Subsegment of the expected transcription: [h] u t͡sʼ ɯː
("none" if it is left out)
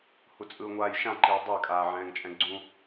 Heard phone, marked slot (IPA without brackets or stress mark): h